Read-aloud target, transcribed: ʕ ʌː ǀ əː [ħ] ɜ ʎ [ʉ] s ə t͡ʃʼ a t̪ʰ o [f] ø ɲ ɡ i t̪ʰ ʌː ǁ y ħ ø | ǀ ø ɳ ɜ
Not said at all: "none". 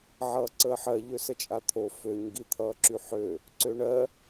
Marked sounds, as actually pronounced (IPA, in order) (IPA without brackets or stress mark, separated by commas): ħ, ø, f